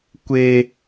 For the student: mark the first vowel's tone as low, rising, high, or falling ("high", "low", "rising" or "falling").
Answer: low